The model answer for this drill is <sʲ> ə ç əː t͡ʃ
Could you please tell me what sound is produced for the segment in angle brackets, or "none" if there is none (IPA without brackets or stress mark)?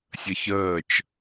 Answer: sʲ